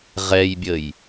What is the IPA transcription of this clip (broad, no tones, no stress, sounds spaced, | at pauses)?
ʁ ɛ j bʲ ə j